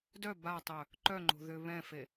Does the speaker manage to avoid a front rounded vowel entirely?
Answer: no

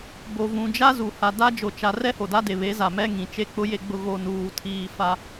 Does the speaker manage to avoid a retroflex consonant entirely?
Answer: yes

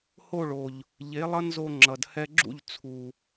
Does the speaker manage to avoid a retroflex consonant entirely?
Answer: no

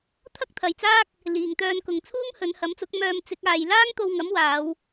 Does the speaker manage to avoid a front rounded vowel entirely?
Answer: no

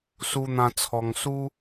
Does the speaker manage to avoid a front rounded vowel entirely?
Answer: yes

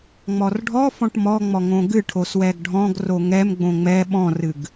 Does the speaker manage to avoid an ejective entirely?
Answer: yes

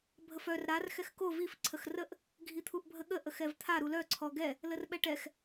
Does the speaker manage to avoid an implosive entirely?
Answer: no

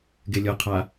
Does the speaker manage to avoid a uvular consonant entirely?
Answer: no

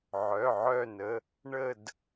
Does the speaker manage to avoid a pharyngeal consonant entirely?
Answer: no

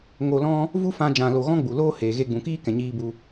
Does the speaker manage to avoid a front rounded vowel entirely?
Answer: yes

